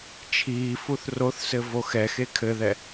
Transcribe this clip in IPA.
t͡ʃʰiːfuθ roθsɘ voxɛxe kʰɘðɛ

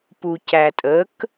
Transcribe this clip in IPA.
pucætʼək

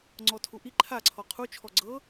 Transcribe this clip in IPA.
ŋ͡ǀɔtʰuʔi ǃʰa ǀʰɔqʰu t͡ʃʰɔɡ͡ǀɤ

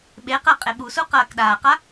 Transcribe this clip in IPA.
ɓeqɜqʼe ɓusuqɐːk ɗaːqa

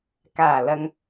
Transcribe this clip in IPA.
kaː˨˩lɐ˨ŋ

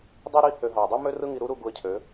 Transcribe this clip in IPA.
dˤi˦ɾi˦ hø˧ɦɑ˨ dˤy˦mø˦ rɯ˦ŋi˧ɾu˦ɾu˧ ɡu˧ə̯cʰø˨˦

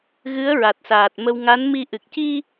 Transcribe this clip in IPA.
ɣɨ˧˥ə̯ɹa˨˩t̚saː˨˩t̚ mə˧w ŋa˧˥nmi˧ ʔɨ˨˩k̚ci˧

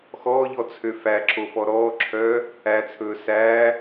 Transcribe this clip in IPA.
xɔːʎɔ t͡sʰøfæǁo fɔɾɔːǁʰœː | æt͡sʰɵː sæː

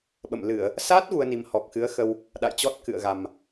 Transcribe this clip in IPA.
ɓə̰˧˨mlɨ˧˩˨ə̯ | sa˦˥t̚ ɣu˧ə̯ni˨˩m hɔ˨˩k̚xɨ˨˦ə̯xə˧w | ɗa̰˧˨jt͡ɕɔ˦˥t̚ kɨ̰˧˨ə̯ɣa˨˩m

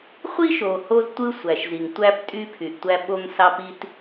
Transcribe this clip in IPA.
χʷi˦ʃo˩ ho˥ztʷɯ˥ sʷæ˩ʃzi˩ŋ tʷæ˦p tʼy˦pʰy˩ʔtʷæ˦ ɓo˦ŋsɑ˦pi˥t

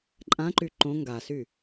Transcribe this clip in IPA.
ǃʼãǃy ǃõ ŋɡasy

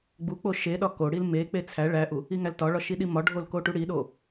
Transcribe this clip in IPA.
ɡ͡buk͡po ʃeɗɒ ko ɽilmek͡pe t͡sʰæ ɭæʔu | iŋæltɒɭɒ ʃiɗimɒɖʱol koʈuɽiɗo

